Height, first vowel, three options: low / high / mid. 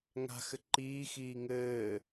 low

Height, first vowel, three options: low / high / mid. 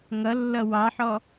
mid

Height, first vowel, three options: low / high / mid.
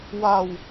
low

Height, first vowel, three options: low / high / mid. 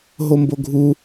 mid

